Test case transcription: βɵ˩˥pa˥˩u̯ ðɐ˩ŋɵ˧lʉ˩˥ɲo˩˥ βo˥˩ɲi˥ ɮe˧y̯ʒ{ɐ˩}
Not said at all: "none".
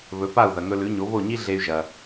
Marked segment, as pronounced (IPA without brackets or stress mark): ɐ˩